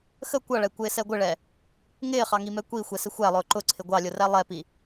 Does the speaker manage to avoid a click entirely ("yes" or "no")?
no